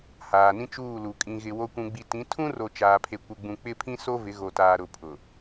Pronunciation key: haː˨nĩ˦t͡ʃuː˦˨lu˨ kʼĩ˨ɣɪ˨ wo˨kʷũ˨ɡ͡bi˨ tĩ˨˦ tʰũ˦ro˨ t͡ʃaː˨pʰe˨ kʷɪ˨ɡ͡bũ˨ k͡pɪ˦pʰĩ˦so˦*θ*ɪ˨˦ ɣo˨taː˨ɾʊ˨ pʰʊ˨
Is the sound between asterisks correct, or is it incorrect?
incorrect